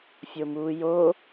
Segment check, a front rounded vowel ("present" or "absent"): absent